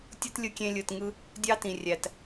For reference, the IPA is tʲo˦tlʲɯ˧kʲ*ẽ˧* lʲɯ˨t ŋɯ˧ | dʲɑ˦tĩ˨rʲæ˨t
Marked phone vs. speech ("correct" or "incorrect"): correct